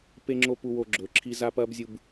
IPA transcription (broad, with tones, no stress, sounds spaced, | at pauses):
p e˦ ŋ͡ǁ o˦ p u˦ w o˦ ɡ͡ǁ ɵː˨ ǁʰ i˦ z a˦ p ɐː˦ b zʲ u˨ b